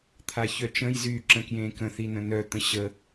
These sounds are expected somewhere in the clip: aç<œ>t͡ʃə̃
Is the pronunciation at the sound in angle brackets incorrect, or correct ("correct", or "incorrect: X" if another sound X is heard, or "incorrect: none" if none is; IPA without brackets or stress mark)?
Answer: correct